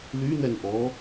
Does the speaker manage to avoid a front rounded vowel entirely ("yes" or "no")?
no